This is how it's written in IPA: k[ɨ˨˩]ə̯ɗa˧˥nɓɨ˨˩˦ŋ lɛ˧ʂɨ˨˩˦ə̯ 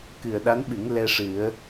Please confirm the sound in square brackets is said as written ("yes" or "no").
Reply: yes